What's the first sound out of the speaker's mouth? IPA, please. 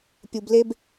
pʲ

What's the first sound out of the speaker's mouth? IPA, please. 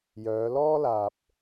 j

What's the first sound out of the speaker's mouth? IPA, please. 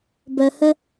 b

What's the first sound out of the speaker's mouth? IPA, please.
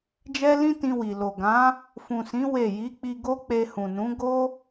d͡ʒ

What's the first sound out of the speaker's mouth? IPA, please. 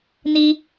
n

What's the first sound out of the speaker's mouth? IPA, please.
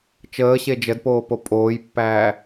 t͡ʃ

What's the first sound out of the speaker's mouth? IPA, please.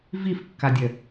v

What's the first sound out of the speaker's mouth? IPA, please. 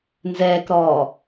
n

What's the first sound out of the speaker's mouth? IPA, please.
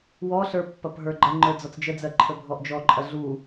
w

